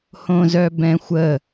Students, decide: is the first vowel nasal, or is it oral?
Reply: nasal